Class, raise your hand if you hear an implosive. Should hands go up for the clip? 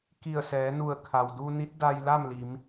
no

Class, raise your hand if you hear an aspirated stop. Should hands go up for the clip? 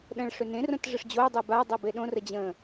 no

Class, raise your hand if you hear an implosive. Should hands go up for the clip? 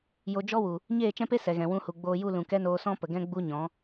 no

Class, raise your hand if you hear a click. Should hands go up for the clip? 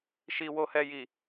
no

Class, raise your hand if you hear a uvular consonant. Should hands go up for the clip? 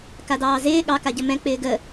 no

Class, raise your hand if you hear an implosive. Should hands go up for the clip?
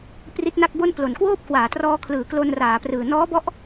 no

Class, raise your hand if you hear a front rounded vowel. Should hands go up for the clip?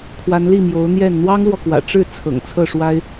no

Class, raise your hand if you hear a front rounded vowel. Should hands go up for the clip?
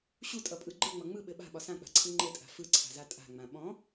no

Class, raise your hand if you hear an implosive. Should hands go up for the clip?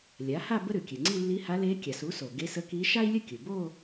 no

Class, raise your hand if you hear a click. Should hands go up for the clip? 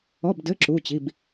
yes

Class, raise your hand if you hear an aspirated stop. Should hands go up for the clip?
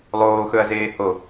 no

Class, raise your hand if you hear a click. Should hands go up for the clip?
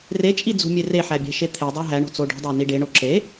yes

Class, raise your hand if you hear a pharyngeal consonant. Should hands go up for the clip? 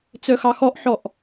yes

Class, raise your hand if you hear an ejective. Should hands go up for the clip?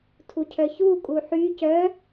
yes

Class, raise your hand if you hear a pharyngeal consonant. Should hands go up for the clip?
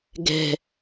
no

